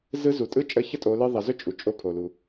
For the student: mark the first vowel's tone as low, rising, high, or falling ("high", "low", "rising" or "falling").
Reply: rising